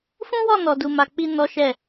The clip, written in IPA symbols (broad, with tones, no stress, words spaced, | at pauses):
fũ˦wɔ˦˨ nɔ˨du˨ ma˨k͡pi˧ nɔ˦ʃɛ˦˨